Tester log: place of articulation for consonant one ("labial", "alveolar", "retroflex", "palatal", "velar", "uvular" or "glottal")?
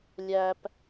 alveolar